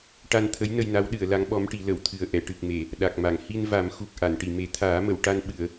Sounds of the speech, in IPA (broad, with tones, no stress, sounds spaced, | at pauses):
ʈ a˧ n t̪ʰ ə˧˥ j n ə˧ j n a˧˥ w ɗ ɨ˨˩˨ ə̯ l a˧˥ ŋ ɓ ɔ˧˥ m ʈ i˨˩˦ l ə˨˩˨ w t̪ʰ ɨ˨˩ ə̯ ʔ ɛ˨˩˨ ʈ ɨ˨˩ k̚ m e˨˩˨ | ɗ a˨˩ k̚ m a˨˩˨ ŋ h i˧ n v a˨˩˦ m x u˨˩ k̚ ʔ a˨˩˨ n ʈ i˨˩˨ m e˨˩˦ t̪ʰ aː˨˩˦ m ə˨˩˨ w ʈ a˧ n ɓ ɨ˨˩˨ ə̯